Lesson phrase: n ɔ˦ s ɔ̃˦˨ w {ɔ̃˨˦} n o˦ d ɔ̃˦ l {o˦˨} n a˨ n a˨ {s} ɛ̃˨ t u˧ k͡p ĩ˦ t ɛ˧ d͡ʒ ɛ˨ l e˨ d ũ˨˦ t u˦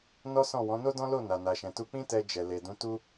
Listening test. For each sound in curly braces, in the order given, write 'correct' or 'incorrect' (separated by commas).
correct, correct, incorrect